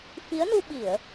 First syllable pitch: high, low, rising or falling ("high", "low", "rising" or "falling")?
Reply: rising